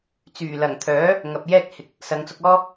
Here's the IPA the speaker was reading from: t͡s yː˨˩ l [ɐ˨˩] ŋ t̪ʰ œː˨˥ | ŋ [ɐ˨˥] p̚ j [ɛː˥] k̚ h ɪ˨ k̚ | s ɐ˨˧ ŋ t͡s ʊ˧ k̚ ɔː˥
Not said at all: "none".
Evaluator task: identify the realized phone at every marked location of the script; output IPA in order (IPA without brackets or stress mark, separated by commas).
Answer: ɐ˨˩, ɐ˨, ɛː˥